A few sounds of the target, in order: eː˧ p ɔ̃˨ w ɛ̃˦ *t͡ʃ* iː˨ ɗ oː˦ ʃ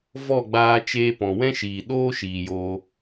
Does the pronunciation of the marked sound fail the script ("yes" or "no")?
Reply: yes